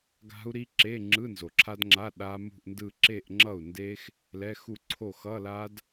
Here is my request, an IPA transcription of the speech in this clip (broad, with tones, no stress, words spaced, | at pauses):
ɡa̤˦˥u̯ɾi˦˥ ǁe˧˥˧ŋ͡ǁɯ˧˥˧ nzo˩ǁʰa˦˥dŋ͡ǁa˧˥˧ ɗa˦˥mṳ˥˧ʔndɯ˥˧ ǁe˥˧ʔŋ͡ǁʌ˥˩u̯nde˦˥x | lɛ˧˥˧ xu˥˩ǀʰo˥˩ xʌ˧˥˧la˦˥d